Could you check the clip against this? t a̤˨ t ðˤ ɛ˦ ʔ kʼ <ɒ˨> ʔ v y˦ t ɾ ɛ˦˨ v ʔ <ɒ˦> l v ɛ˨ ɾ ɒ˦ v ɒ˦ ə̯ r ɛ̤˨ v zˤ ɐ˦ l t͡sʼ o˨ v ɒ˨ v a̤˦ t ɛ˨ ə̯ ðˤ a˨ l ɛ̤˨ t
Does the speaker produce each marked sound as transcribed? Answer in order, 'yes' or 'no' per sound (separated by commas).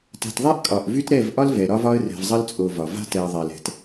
yes, yes